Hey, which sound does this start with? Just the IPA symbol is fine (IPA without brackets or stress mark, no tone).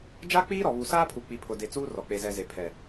d͡ʒ